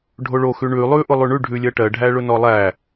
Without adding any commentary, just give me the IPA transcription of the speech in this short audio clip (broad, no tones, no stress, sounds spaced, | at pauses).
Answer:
ɖʱ o ɭ o x ʉ ɳ ʉ lˠ ʉ ʔ ʊ lˠ ʉ ɳ ʉ ɖʱ ʉ lʲ ɜ ʈ ɜ ɖʱ æ ɭ ʊ n ɔ lˠ æ